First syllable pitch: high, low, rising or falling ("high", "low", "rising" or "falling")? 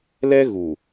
high